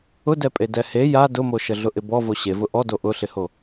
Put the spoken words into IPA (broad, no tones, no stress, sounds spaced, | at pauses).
ʊ d ɛ pʼ e d ɛ h e j a d ʊ m o ʃ ə ɮ ʊ ʔ ɪ b ɔ v o ɕ e v ʊ ʔ ɔ d o ʔ ʊ ɬ ɪ h o